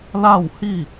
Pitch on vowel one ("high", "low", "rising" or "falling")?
falling